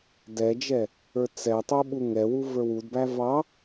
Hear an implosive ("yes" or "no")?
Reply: yes